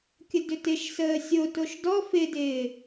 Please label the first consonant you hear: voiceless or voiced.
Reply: voiceless